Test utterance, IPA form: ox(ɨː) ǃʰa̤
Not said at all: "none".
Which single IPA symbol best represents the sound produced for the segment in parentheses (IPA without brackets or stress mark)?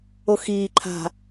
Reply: iː